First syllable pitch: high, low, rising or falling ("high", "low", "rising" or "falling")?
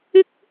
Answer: high